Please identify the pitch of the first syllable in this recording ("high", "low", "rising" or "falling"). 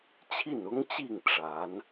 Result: falling